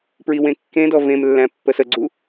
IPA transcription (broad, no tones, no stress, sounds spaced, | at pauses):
p ɹ i w ẽ kː ẽ d ɔ v ẽ m lː æ̃ pː ə s ə ɡ͡ǀ u